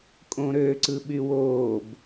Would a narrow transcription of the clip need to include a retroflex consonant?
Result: no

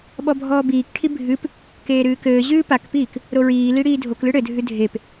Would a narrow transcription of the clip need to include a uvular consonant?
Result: no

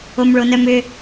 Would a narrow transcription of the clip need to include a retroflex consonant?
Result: yes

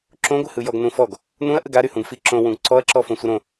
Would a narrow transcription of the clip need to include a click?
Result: yes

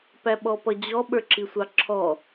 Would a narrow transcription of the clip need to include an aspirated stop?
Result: yes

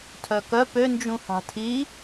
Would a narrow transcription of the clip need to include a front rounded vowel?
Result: yes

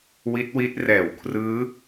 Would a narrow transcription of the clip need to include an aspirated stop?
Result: yes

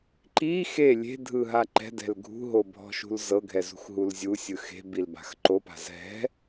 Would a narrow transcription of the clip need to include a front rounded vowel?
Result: no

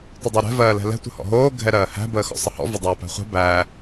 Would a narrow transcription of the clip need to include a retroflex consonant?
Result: no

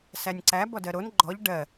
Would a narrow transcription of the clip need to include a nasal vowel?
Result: no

